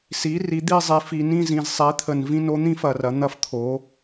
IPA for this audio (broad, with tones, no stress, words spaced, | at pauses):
si˩˥ri˩˥ d̪i˥˧zˤi˩˥f i˨nĩ˥˧zĩ˨z sˤi˩˥t̪ʰə˨n vĩ˥˧no˥n̪ĩ˥fɐ˨ rɐ˩˥n̪ɐ˥ft̪ʰo˩˥